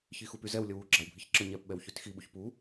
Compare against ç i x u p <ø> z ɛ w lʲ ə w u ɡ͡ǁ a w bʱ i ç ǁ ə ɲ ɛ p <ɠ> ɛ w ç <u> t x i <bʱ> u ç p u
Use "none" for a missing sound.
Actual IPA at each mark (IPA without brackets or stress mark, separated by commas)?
y, ɓ, y, ɓ